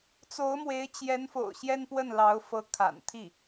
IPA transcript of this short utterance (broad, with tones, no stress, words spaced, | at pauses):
t͡so˧˥ʊ̯mwe˧˥ɪ̯t͡ɕjɛ˧˥nfo̰˨˩ʊ̯ ɕjɛ˥npwə˥˩nlɑ˧˥ʊ̯ fɤ˧˥kʰa̰˨˩nt̪ʰi˥˩